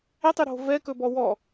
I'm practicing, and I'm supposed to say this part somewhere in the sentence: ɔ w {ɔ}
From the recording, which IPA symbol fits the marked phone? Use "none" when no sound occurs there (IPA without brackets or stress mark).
ɔ